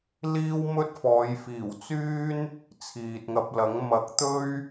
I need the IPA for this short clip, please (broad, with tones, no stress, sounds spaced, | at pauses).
l iː˥ w m ɵ˥ t̚ f ɔː˨˧ j f iː˨˩ w t͡s yː˥ n | t͡sʰ iː˨ t̚ ŋ ɐ˧ p̚ l ɐ˨˥ ŋ m ɐ˨˥ k̚ t̪ ɵ˥ ɥ